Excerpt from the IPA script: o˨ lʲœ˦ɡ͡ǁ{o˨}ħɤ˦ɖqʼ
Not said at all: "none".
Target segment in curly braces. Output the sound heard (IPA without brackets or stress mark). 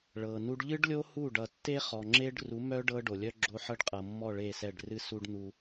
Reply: o˦